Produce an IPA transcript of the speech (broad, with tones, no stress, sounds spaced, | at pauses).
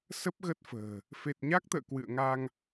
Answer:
s ə˦˥ p̚ ɣ ə˦˥ t̚ f ə̤ː˨˩ | f e˨˩ t̚ ɲ a˦˥ k̚ t̪ ə̰ː˧˨ k w ɨ̰˧˨ ə̯ ŋ a˧ ŋ